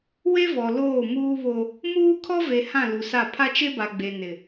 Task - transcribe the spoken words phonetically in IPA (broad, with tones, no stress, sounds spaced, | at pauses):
w e˦ v ɔ˨ l oː˦˨ m uː˦ β o˦ | m uː˦ kʰ ɔ˦ v e˨ h ã˦˨ l u˨ s a˦˨ pʰ a˦ t͡ʃ e˦ b a˨ ɡ͡b e˨ n ɪ˨